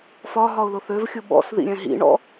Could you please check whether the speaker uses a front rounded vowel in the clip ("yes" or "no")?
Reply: yes